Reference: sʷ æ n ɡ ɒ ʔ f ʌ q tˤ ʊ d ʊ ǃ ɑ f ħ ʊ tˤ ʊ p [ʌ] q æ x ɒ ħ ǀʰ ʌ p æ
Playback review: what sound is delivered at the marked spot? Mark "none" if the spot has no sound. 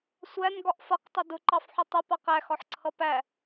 ɑ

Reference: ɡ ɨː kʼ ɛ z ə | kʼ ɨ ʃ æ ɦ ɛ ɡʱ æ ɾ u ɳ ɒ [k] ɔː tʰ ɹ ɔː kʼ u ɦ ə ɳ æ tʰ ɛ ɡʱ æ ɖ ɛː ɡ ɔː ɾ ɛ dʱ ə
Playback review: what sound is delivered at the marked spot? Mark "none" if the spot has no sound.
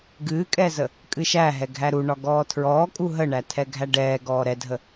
ɡ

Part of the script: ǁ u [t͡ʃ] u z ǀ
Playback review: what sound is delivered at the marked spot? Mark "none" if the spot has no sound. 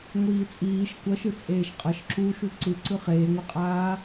ʃ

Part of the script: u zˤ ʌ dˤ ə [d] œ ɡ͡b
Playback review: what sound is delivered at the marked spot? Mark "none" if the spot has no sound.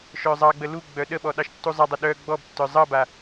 ɗ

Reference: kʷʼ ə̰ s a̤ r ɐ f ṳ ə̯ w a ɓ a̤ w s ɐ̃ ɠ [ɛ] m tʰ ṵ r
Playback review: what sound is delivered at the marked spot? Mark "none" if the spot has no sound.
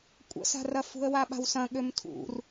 ø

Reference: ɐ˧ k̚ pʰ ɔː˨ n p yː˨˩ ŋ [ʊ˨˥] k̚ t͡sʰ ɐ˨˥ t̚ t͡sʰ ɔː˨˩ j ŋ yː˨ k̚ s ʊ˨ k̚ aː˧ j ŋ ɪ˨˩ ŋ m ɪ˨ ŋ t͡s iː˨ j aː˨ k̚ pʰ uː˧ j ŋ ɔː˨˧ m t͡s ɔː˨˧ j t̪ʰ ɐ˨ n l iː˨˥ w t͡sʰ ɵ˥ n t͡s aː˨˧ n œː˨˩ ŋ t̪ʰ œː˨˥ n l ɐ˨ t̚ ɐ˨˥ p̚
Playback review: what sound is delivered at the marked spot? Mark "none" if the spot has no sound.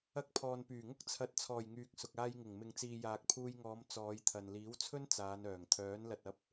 ʊ˥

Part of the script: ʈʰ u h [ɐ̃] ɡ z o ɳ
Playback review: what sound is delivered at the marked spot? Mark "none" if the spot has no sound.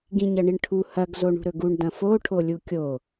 ɐ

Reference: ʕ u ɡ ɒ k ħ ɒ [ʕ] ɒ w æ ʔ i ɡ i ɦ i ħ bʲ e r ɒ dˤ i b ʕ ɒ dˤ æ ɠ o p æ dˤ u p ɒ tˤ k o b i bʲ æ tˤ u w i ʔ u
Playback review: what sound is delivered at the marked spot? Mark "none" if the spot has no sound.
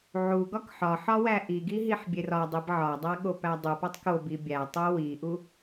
ħ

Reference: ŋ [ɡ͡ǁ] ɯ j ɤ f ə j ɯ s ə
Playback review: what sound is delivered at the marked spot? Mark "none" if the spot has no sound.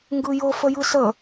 ɡ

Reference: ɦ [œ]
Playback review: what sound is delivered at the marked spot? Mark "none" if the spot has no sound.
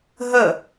ə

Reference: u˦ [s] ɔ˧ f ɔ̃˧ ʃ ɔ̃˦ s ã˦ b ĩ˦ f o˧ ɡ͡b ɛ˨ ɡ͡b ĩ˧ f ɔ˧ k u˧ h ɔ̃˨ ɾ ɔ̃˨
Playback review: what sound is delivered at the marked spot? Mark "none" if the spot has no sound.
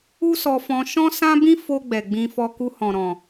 s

